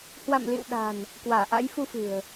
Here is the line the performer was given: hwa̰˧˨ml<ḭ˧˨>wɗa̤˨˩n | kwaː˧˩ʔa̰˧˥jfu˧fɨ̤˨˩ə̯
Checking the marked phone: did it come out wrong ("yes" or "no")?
no